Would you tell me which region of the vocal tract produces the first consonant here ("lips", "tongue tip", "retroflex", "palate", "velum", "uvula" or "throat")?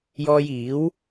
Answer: palate